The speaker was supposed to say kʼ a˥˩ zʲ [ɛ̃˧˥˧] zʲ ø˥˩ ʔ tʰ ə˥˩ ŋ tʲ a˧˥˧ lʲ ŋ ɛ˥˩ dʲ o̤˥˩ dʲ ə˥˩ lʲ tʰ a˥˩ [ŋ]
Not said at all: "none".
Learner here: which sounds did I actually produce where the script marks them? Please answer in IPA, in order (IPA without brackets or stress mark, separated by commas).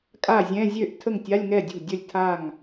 ɛ̃˧˥˧, ŋ